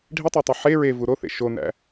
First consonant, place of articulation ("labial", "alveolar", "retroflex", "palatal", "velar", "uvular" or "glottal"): retroflex